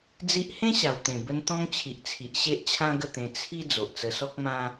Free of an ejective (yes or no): yes